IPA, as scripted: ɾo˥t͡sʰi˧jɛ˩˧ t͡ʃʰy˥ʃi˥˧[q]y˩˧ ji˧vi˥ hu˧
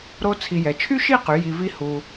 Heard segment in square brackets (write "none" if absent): q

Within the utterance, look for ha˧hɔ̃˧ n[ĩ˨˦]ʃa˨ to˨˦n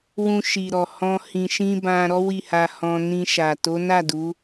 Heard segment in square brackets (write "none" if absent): ĩ˧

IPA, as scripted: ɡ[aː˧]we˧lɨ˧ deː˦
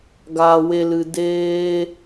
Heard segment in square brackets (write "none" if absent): aː˧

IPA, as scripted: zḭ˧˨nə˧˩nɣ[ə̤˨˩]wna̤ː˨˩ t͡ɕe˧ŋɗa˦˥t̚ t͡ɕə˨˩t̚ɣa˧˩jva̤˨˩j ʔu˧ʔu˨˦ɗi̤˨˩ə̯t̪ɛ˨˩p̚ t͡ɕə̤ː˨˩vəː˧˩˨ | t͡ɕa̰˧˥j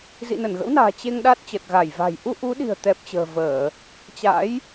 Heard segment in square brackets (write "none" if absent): ə̰˧˥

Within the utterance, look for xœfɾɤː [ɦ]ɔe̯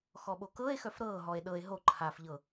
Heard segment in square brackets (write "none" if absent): ɦ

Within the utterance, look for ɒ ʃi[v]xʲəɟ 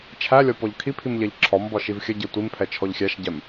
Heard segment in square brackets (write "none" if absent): v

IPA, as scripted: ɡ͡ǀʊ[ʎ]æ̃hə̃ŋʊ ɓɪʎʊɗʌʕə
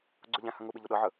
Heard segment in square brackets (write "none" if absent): ʎ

